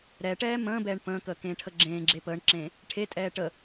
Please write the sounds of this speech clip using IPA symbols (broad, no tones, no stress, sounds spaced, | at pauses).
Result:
ɾ ɛ ʈ ɛː m ə̃ː b ɛː ɳ p ə̃ː k əː k ẽː ʈʰ ə ɡ͡ǁ ẽː ɡ͡ǁ eː p əː ɳ ǁ ẽː | ʈʰ e tʼ ɛː ʈ ə